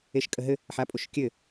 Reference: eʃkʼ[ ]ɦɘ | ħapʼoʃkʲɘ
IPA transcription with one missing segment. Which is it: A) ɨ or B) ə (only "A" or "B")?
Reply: B